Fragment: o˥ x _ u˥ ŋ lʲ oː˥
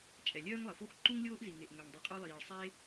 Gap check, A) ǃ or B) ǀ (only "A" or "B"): A